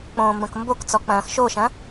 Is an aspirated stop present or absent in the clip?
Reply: absent